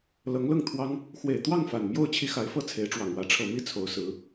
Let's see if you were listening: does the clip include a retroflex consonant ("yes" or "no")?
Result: yes